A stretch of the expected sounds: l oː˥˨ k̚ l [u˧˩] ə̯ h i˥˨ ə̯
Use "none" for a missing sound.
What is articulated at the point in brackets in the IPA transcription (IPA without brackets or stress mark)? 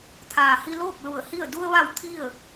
u˧˩